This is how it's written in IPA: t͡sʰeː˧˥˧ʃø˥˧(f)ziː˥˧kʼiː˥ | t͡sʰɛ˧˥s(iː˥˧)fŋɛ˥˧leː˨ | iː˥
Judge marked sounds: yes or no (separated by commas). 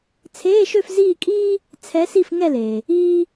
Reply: yes, no